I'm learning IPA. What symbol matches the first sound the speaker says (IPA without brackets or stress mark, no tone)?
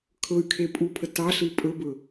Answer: kʰ